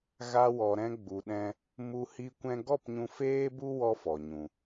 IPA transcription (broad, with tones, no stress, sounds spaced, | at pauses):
ɣ a˧ w ɔ˨ ɾ ɛ̃˧ ɡ͡b u˨ ɗ ɛ̃˧ | m u˧ h i˧ kʷ ɛ̃˧ ɡ ɔ˦˨ p ɲ ũ˧ f eː˦ b u˦ w ɔ˦ f ɔ˨ ɲ ũ˨